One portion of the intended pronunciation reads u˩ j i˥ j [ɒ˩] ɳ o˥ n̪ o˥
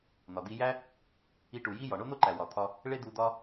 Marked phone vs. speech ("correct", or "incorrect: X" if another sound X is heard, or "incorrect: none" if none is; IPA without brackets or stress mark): correct